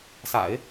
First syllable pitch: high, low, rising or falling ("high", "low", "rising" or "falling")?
low